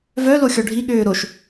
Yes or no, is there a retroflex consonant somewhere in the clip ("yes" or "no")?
yes